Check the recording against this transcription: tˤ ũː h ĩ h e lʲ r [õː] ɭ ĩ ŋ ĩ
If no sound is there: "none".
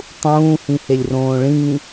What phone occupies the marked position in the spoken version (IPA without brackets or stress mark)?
õː